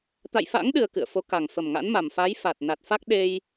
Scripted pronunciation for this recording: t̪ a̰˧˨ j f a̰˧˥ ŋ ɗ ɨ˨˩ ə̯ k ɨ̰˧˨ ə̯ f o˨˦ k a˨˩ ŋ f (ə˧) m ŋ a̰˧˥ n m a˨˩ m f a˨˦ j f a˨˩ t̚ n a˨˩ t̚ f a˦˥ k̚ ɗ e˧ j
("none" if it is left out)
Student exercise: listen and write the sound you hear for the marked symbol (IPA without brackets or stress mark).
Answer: ə˨˩